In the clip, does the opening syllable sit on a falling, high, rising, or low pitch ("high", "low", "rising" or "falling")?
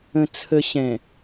low